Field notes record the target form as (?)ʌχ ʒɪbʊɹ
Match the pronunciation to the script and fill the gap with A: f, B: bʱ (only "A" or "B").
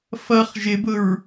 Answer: A